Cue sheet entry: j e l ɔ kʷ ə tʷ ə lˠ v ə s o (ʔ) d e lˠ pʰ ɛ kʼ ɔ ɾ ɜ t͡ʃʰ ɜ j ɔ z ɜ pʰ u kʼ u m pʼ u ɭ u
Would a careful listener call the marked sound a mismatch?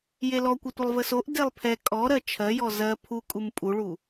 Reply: no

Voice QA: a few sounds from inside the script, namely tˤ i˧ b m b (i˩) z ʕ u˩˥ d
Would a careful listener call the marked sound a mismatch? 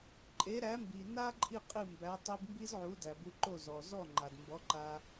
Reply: yes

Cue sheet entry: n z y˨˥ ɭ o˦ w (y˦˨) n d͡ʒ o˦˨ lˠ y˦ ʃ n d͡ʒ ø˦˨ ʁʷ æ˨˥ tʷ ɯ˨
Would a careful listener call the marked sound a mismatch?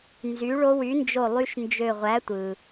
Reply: yes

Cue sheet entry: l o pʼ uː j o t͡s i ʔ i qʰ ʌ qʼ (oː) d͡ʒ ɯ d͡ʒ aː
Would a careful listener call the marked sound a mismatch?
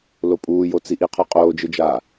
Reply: no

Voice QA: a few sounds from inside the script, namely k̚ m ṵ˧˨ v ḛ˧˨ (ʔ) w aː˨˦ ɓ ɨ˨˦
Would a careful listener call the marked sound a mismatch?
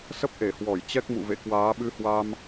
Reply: yes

